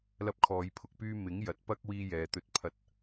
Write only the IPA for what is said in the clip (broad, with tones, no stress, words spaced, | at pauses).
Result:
lɐ˧p̚kʰɔː˨˧jpʰʊ˨k̚pyː˧ mɪ˨˥ŋjɐ˨˥t̚ pɐ˧k̚ wiː˧jɛː˨t̪ɵ˧t̚ pʰɐ˧t̚